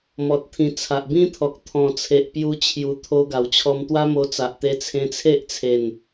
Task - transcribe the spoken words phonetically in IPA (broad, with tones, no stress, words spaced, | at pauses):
mɔ˨t̚t̪ʰĩ˨˩ t͡sʰa˨ʔbĩ˦t̪ʰɔ˨k̚ t̪ʰɔ̃˨˩t͡sʰe˨ʔpju˧ t͡ɕʰju˨˩ t̪ʰo˧ɡa˨˩wt͡ɕʰɔ˧m t̪wa˦mo˧ t͡sa˨ʔt̪e˧ t͡sʰẽ˧t͡sʰe˦ʔt͡sʰe˨˩n